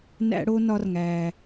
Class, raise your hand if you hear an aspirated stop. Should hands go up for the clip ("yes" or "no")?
no